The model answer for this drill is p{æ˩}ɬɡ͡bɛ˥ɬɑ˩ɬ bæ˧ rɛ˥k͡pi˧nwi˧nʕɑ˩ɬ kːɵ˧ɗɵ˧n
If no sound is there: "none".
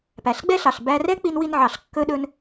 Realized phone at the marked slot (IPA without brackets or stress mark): æ˩